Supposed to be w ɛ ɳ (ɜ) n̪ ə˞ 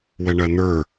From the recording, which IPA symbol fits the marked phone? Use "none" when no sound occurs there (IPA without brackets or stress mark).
ɜ